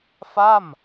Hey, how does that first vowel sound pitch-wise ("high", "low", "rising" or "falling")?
falling